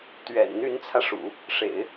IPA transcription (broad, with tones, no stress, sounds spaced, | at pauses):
t̪ ɥ ɛ̰˨˩ n n̪ y˧˥ n t͡sʰ ä˧ ʂ ṵ˨˩˦ | ʂ ḛ˨˩˦ ɪ̯